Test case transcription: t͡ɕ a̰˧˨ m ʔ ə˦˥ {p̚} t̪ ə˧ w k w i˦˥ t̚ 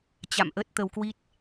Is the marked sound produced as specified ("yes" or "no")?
no